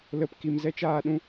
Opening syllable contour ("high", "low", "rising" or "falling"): low